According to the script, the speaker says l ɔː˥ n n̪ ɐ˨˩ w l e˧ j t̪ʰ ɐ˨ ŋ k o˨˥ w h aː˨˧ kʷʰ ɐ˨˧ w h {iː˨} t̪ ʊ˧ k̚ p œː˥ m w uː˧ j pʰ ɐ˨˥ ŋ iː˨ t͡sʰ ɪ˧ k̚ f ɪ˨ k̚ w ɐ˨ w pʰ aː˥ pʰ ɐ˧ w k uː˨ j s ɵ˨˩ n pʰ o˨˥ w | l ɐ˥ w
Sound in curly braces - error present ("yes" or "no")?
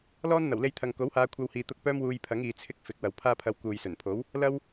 no